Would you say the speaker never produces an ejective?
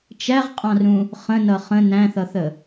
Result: no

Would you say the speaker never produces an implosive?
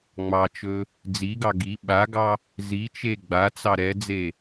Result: no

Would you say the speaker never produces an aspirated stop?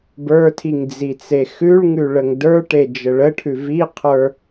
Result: no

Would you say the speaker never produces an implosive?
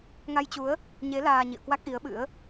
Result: no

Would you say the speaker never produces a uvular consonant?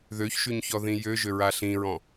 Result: yes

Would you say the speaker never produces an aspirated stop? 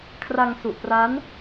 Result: no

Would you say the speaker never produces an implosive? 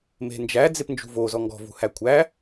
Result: yes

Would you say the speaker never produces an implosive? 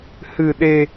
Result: no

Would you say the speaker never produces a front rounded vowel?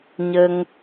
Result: yes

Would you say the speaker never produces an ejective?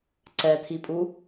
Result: no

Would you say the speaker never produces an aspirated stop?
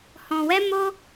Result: yes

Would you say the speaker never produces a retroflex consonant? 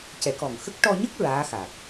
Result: no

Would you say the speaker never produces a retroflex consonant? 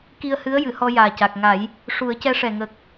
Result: no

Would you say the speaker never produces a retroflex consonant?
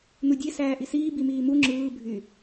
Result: yes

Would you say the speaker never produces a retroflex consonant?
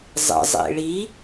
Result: no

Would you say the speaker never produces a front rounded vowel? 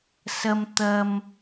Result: yes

